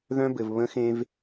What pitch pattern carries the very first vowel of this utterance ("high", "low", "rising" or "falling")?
high